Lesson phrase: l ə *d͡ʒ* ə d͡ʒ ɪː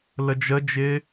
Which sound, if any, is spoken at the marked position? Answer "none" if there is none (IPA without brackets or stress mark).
d͡ʒ